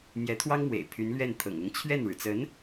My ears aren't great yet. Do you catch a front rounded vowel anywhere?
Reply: yes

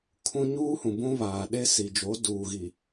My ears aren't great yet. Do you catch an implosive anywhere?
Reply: yes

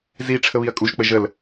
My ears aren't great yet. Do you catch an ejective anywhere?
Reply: yes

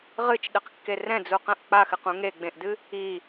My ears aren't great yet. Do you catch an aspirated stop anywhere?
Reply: no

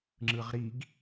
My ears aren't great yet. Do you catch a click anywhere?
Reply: yes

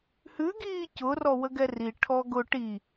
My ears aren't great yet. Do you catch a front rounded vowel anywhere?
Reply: no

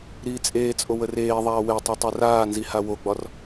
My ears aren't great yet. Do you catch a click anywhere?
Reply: no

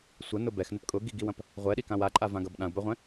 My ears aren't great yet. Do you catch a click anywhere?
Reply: yes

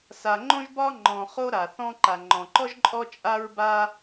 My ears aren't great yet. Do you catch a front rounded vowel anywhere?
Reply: no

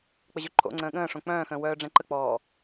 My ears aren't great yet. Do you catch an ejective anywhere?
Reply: no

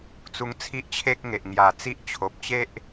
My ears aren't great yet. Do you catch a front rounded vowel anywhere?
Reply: no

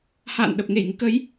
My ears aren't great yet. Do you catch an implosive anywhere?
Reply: yes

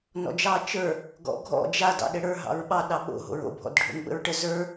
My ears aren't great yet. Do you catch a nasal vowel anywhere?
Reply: no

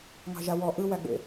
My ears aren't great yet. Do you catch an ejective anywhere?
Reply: no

